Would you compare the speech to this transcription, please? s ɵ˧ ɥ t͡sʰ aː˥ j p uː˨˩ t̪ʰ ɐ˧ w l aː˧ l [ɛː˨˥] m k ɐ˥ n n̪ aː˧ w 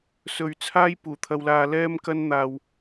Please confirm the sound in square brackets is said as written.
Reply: no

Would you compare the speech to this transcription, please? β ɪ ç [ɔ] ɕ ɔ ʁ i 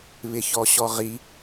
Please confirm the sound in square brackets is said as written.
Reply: yes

